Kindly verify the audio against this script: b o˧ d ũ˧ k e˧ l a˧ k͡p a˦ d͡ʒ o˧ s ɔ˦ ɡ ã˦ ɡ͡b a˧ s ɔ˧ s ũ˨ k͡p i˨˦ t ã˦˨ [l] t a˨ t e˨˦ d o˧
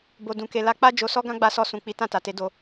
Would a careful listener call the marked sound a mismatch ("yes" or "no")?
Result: yes